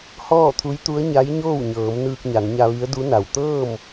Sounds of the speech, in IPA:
hɔː˥˨t̪ʰu˧˥jt̪u˧˥ə̯ ɲa˧˥jɲoː˥˨wɲɤː˩˧m nɯː˧k̚ɲa˩˧nɲa˧ʋi˧˥ə̯ du˧˥na˩w t̪ɤː˥˨m

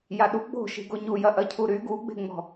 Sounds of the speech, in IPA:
jaɗu ɡ͡bo̤ ʃi̤ɡoɲu jɐʔɐcʰuɾy ɡuɡ͡be̤ŋ͡mɔ̤

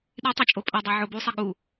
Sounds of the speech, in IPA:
ɗitˤot͡ʃʼo pʼɐdˤə˞ ʕobusˤɐ ɠu

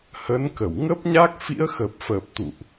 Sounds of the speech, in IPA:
hə˨˦nkə˧˩w ŋə˦˥p̚ɲa˦˥k̚ fḭ˧˥ə̯xə˨˩p̚fəː˨˩p̚t̪ṵ˧˨ʔ

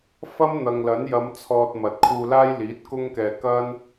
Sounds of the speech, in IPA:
fɐ˥mn̪ɐ˨ŋlɐ˨˥n jɐ˨˧m t͡sʰɔː˧t̚ mɐ˨t̚kʰuː˧ laː˥jliː˨˥t̚kʊ˥ŋkɛː˧ kɐ˥n

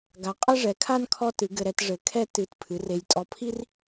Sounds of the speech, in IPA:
ɡa˩˥ qʼɐ˥ʐɛ˩˥kʰa˥n kʰɔ˥tɨ˩˥ ɡɘ˧ɾɛ˩˥t ʐɘ˩˥ kʰɛ˥ tɨ˧t pʰɨ˩˥re˧j tʼɔ˧pʰi˥r

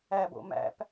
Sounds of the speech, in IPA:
æbo̰ mæ̰p

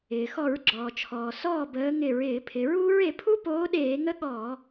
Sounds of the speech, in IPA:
ɪː˩xɔ˧˩˧ɹɡ͡ǁɔː˩t͡ʃʰɔː˩ sɔː˥˩bəː˨˥ ŋɪ˧˩˧ɹ ɪː˧˩˧pʰɪ˩˧ɹuː˦˥ɹ e˩˧pʰu˦˥poː˨˥ɗeː˧˩˧ ŋə˦˥ɠɔː˧˩˧

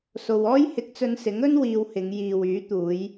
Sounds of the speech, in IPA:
so˧wɔː˥j hɪ˧k̚t͡sɵ˧nsɪ˨˥ŋɵ˥n wiː˧whɪ˨˧ŋ jiː˨w yː˨˥t̪uː˨˧j

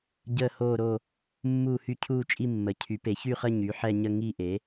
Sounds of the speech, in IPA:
ɟəː˥˧ hoː˥˧ɾo˥˧ | mːuː˥˧hy˥˧cʰuː˥˧t͡ʃʼi˥˧ mːə˩˥ cʰy˩˥pe˩˥ çy˥˧χə˥˧ ɲy˩˥ħɛ˥˧ɲə˥˧ ŋi˥˧ ʔe˩˥

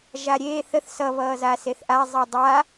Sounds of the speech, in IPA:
ʒaɾʲe θəθ sʌ βʌːzaseθʔa zˤidˤa

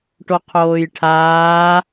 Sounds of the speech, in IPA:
ʈoqʰoːjʈʰaː

